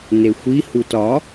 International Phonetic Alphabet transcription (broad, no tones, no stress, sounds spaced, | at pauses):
n e xʷ i h u t ɒ